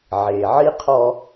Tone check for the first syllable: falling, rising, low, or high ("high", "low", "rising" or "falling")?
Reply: low